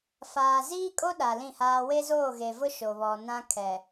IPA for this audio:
f aː˨ z iː˦ kʼ o˦ ɗ a˨ l ĩ˦˨ h aː˦ w e˦ z oː˦˨ ɣ e˨ v ʊ˦ ʃ o˨ β ɔ˨ n ã˦ kʰ ɛ˨

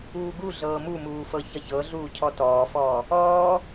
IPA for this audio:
uː ɡ u ɮ ɤː m u m uː f ɤ ç ʌ ç ɤ ɮ uː cʰ ɔ t ɔː f ɔː | ɔː

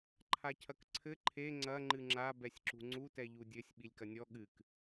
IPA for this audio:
ǃʰ a cʰ ɐ k ǀʰ ɘ ǃʰ e ŋ͡ǀ ɐ ŋ͡ǃ ɨ ŋ͡ǁ a b ɛ sʲ ǁ ṳ ŋ͡ǀ u t ɛ ʎ u dʲ ɘ sʲ ɓ i lʲ k ɐ nʲ ɔ ɠ ɨ k

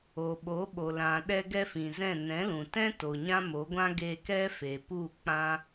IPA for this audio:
o˨ ɓ o˨˦ ɓ o˨ l ã˨ ɗ ɛ˦ ɡ ɛ˦ f ĩ˨ z ɛ̃˦˨ n ɛ̃˨˦ l ũ˨ t ɛ̃˦ t o˨ ɲ ã˦ m o˨˦ ɡʷ ã˦ ɡ e˧ k ɛ˦ f e˨ p u˦˨ k͡p ã˦

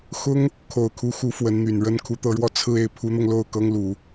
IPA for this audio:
x ʊ˥ ŋ | kʰ o˨˩ ʊ̯ kʰ u˧˥ x u˧˥ f w ə˧˥ n n̪ y˨˩ n ɻ ə˥˩ n kʰ u˧˥ t̪ ɤ˧˥ ɻ w ɔ˥˧ t͡sʰ ɹ̩˥˧ e˥˩ ɪ̯ pʰ u˧˥ n̪ ɤ˧ ŋ l o˥˩ ʊ̯ k ɤ˥ ŋ l u˨˩˦

